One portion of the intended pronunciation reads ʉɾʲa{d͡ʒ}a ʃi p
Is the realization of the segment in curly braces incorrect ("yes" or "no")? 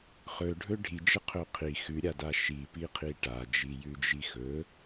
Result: yes